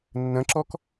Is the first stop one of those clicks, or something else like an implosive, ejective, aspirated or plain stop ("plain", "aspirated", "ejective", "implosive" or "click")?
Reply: click